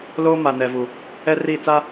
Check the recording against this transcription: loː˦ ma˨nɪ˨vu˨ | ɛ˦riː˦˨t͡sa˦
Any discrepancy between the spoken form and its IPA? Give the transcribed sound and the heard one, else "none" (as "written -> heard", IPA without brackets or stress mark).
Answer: ɪ˨ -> ɛ˨